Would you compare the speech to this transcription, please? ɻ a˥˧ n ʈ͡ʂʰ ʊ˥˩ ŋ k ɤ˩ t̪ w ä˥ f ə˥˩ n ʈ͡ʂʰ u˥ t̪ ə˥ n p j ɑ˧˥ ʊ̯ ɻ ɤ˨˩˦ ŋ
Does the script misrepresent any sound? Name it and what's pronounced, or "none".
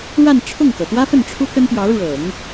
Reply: none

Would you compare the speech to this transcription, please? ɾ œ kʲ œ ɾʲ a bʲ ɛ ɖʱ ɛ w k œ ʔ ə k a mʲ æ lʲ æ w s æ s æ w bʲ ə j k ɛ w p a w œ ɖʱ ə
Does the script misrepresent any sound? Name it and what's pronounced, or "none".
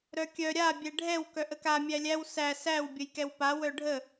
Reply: none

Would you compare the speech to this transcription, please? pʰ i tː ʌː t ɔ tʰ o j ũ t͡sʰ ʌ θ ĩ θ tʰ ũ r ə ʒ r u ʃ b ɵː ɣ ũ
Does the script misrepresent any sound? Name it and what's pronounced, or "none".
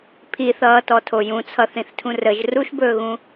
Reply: tː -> θ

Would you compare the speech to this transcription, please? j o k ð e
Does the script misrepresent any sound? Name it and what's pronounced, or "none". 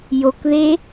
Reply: none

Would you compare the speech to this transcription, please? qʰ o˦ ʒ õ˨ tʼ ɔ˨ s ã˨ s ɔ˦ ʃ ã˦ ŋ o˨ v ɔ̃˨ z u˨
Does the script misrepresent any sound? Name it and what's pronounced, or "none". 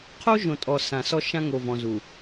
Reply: none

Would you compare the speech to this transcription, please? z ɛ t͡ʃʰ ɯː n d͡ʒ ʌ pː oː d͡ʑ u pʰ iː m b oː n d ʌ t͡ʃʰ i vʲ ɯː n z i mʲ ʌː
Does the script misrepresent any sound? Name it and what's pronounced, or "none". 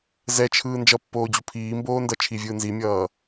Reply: none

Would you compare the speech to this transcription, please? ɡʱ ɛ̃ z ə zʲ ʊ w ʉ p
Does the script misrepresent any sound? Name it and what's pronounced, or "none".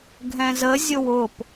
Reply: ʉ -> ʊ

